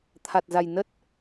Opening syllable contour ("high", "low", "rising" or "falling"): low